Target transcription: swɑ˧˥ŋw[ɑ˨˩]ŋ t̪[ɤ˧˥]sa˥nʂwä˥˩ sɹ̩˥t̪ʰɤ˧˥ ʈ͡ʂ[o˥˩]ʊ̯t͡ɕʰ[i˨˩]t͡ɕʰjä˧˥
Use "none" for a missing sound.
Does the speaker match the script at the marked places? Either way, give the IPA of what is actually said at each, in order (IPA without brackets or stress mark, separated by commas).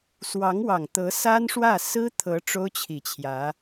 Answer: ɑ˨˩, ɤ˧˥, o˥, i˨˩